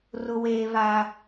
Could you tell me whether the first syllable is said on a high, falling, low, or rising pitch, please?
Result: high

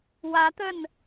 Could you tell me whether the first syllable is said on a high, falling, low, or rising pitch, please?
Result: rising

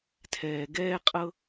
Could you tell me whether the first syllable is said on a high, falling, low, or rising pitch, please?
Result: low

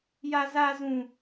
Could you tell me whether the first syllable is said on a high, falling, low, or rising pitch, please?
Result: high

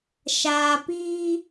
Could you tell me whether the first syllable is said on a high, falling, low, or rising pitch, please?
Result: low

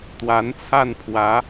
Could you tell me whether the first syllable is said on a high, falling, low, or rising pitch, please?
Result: rising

